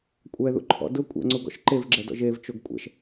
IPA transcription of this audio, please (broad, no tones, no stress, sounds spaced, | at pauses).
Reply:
kʷʼ ɛ ð ṵ ǃʰ ɔ̰ d ʊ kʷʼ ḛ ŋ͡ǀ u ɡ ɔ̰ ʃ ǃ e v ɡ͡ǁ ɛ d ɔ̰ ʒ e v t͡ʃ o ɡ kʷʼ ɛ̰ ʃ